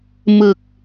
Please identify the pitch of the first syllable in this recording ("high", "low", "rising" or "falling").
low